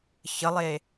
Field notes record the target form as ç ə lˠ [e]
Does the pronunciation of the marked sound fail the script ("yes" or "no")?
no